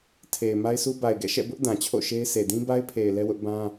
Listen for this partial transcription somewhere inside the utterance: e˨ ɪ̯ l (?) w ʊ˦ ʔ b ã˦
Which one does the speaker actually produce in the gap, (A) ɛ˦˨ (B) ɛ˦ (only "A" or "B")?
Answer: B